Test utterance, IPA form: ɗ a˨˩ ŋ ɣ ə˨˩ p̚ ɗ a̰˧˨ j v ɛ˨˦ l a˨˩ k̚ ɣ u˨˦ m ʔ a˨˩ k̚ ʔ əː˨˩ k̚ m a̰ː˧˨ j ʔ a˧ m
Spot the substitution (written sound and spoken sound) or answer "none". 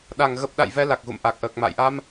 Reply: u˨˦ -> ṵ˧˨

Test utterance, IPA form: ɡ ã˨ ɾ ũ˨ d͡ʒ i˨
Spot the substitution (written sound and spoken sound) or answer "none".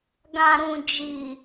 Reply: none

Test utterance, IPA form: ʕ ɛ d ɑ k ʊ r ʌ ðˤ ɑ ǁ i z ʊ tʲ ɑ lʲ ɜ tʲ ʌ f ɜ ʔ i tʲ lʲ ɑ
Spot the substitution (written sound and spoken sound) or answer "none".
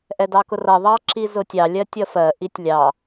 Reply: ʕ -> ʔ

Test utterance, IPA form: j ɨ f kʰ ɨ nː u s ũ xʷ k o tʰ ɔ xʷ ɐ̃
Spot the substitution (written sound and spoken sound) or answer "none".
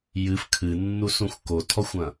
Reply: none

